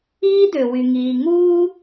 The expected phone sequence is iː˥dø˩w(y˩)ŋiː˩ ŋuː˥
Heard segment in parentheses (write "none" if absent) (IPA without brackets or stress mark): y˩